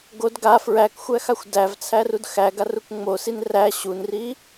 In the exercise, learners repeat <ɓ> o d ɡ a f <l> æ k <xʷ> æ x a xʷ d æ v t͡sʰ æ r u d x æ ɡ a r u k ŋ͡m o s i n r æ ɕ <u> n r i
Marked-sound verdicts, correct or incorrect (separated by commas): incorrect, incorrect, correct, correct